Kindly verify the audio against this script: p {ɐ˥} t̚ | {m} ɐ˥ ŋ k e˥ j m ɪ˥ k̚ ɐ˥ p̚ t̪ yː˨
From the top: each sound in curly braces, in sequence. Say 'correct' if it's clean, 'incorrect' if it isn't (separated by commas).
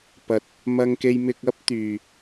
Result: incorrect, correct